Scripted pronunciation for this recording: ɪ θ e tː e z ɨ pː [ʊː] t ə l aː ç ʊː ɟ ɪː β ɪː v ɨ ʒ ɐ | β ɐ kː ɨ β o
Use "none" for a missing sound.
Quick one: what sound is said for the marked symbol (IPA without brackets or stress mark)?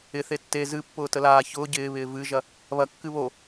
ʊː